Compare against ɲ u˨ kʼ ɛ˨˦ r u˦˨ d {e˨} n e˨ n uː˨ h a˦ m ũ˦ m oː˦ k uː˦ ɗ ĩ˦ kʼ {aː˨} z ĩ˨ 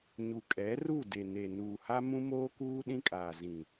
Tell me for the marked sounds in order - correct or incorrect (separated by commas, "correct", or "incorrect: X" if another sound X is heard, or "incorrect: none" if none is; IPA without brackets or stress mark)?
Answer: correct, correct